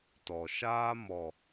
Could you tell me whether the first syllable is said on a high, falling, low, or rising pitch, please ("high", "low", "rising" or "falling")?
low